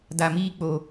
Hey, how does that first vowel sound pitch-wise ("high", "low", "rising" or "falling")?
low